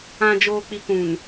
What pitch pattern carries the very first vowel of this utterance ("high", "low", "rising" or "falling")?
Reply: low